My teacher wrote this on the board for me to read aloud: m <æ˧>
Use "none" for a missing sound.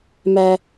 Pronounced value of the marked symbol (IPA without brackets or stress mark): æ˧